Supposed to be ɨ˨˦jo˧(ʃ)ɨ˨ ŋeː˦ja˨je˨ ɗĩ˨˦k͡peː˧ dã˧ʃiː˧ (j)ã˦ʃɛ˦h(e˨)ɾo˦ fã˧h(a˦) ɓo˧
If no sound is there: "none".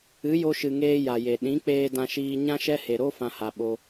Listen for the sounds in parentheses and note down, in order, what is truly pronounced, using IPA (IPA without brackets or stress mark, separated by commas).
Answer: ʃ, ɲ, e˨, a˨